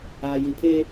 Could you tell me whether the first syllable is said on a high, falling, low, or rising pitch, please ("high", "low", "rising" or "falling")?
low